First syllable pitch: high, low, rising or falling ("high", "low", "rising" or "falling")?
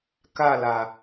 falling